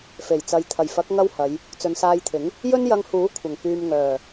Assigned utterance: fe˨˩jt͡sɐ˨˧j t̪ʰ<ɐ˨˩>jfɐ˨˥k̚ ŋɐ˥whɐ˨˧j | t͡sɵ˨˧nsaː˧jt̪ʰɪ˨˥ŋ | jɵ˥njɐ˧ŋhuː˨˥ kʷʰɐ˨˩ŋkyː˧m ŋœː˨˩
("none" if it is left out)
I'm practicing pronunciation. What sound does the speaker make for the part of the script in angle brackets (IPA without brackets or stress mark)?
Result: ɐ˨˩